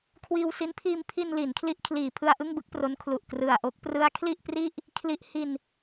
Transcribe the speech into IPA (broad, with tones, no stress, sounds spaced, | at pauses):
kʰ w iː˧ w s i˦˥ n pʰ iː˧ m pʰ i˧ n l i˩˦ n kʰ l i˦˥ ʔ kʰ l iː˩˦ pʰ ɯ˧ a̯ ʔ ɯ˥˩ ŋ b ɯ˥˩ k̚ p r o˦˥ n kʰ l u˨˩ ʔ k r ɯ˨˩ a̯ ʔ o˦˥ k̚ p r ɯ˦˥ a̯ kʰ l i˥˩ ʔ p r i˥˩ ʔ | kʰ l i˦˥ ʔ h i˧ n